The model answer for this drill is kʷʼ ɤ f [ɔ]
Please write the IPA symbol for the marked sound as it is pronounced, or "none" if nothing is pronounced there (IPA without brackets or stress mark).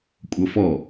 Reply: ɔ